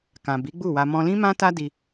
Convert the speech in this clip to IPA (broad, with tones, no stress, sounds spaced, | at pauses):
k ã˨ b i˨˦ ɡ͡b u˦˨ w a˧ m ɔ̃˧ l ĩ˦ m ã˦ t a˦ d i˧